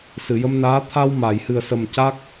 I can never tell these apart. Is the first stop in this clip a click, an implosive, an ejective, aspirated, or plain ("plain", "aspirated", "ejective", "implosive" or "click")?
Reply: aspirated